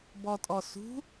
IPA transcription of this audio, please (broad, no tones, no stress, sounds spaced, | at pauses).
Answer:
b ɔ tʼ ɔ s ṳ